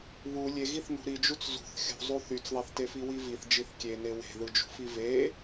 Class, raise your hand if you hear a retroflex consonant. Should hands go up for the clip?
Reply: no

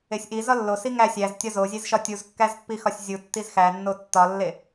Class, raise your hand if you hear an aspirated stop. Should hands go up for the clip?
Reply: no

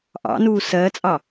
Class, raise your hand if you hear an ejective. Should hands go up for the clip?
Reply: yes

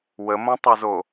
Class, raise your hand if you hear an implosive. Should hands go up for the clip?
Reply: no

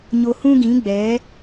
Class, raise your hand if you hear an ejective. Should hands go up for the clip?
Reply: no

